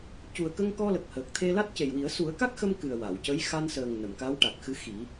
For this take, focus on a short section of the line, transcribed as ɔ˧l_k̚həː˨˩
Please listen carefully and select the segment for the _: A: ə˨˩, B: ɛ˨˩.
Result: A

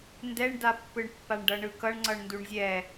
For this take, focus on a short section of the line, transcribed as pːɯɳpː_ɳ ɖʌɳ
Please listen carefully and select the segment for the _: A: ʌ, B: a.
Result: B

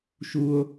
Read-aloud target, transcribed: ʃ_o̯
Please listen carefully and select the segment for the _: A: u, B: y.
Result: A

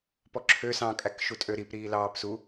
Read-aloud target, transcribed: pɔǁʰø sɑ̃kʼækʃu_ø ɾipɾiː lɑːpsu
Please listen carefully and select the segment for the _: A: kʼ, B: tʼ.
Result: B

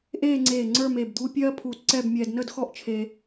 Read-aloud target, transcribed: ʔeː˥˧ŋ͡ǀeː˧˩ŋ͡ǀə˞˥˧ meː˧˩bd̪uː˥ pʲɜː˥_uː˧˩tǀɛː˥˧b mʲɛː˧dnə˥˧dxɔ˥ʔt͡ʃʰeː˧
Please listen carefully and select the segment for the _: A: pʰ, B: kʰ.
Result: A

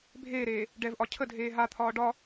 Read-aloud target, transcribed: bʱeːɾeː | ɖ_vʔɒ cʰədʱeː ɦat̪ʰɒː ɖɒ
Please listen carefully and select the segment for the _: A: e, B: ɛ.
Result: B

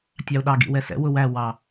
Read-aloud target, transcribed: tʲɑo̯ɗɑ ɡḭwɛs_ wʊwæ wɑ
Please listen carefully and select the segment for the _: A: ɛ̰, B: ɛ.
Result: A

